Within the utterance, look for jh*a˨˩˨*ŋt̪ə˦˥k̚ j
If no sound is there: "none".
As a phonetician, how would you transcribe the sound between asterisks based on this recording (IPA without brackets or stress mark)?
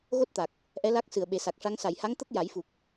a˧˥